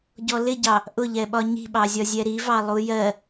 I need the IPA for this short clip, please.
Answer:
ɟ ɔ l ɪ ɟ ɑ | ʔ ʊ ʎ ɛ ɓ ɒ ɲ i̤ ɓ ɑ zʲ ɒ zʲ ɛ ɾ i v ɑ lˠ u j ɜ

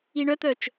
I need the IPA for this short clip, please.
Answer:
i ɳ œ t̪ œ t͡ʃ

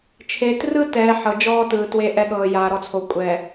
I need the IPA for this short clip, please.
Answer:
t͡ʃʰ e˨ t r ɯ˦ t ɛː˨ ħ ɤ˨ d͡ʒ ɔː˦ t ɯː˨ t w e˦ ʔ ɛ˦ ɠ ɤː˨ j aː˨ ɾ ɔ˦ t͡sʰ o˨ kʷʼ ɛː˨

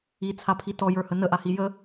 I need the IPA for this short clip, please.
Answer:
i t͡sʰ a pʰ i t ɔ j ə˞ h ə n ə ʔ a h i j ə

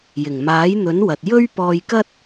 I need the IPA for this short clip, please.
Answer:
j ɪ˨˩ ŋ m aː˨˥ j n̪ ɵ˨˥ n w ɐ˨ t̚ j ɵ˥ ɥ p ɔː˧ j k ɐ˥ t̚

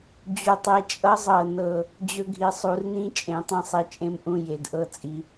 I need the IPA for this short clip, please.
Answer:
d͡ʑ u˨˩ tˤ e˨˦ t͡ʃʼ ʌ˦˥ zˤ ɤ˨˩ n ɤ˨˩ | d͡ʑ ɵ˦˥ ɡʱ i˨˦ sˤ u˨˦ r n ĩ˥˨ t͡ʃʼ ẽ˨˦ tˤ ẽ˥˨ sˤ i˨˦ t͡ʃʼ ẽ˦˥ m ʔ ũ˥˨ j e˨˩ d ʔ ɤ˥˨ t͡sʼ i˨˦

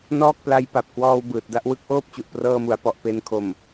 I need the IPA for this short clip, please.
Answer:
n ɔː˥˩ k̚ p l a˧ j p a˨˩ p̚ k w ɔː˧ w b ɯː˨˩ t̚ d a˥˩ ʔ w ɯ˥˩ k̚ ʔ oː˥˩ p̚ t͡ɕ u˨˩ ʔ p r ɤː˧ m u˩˦ a̯ p ɔ˨˩ ʔ p e˧ n kʰ o˨˩ m

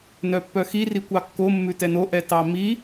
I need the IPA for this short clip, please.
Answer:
n œ pː œ x i r i kʷ ɑ kː o mː ʉ t ɛ n o ʔ ɛ t ɑ m i

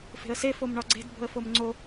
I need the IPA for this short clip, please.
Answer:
f e̤ ə̯ s e f o m ɳ ɒ ɡ͡ǀ e̤ d b o̤ ə̯ f o m ŋ͡ǀ o

